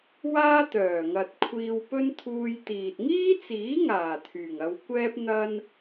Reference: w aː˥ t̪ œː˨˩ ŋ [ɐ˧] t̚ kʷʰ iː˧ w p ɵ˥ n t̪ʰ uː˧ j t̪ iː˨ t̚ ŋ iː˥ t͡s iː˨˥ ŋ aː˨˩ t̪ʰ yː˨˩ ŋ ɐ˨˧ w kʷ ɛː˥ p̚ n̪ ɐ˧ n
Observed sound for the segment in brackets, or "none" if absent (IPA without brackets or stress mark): ɐ˨